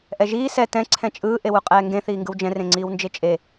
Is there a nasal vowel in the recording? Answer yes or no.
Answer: yes